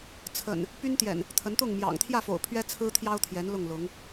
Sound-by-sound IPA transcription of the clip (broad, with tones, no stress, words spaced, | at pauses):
t͡sʰə̰˨˩n | py˦nt̪jɛ̰˨˩n | t̪ʰə˨˦nt̪ʊ˥˨ŋ mjɑ̰˨˩ŋt̪ʰjä˥˨fo̰˨˩ʊ̯ pʰɥɛ˦ t͡sʰɹ̩˦t̪ʰjɑ˦ʊ̯t̪ʰjɛ˨˦n lʊ˥˨ŋlʊ˨˦ŋ